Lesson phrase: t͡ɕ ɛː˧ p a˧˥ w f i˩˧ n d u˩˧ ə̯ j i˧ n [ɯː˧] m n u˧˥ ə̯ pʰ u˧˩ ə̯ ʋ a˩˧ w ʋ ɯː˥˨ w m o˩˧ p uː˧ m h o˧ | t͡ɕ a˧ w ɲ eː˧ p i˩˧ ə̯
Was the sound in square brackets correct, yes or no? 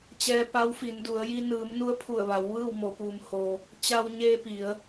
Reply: no